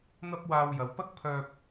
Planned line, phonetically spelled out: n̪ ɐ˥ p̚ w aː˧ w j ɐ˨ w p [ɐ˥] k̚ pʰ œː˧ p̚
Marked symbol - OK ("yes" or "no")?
yes